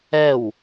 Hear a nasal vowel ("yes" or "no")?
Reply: no